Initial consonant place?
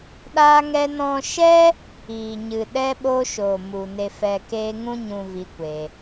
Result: alveolar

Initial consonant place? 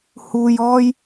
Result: glottal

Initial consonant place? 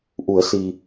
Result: glottal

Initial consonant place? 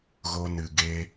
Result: velar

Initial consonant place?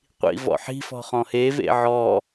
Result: uvular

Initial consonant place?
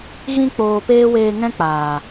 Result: velar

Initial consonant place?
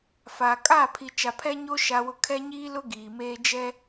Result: labial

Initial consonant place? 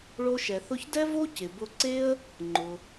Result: retroflex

